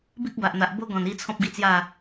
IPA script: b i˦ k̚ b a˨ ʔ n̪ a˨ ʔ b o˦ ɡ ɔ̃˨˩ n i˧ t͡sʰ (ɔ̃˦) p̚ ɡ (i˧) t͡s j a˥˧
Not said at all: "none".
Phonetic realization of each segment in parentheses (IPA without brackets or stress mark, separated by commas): ɔ̃˦, i˦